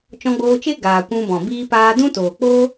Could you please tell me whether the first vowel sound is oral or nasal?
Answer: nasal